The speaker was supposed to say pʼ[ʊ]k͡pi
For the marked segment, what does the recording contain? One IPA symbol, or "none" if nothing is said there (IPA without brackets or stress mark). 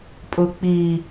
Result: ʊ